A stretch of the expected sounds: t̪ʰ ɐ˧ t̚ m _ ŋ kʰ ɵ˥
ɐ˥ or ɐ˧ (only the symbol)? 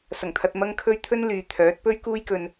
ɐ˥